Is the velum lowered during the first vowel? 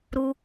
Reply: no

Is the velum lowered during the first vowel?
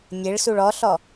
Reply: no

